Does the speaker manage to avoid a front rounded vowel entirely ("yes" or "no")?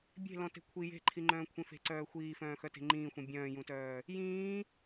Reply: no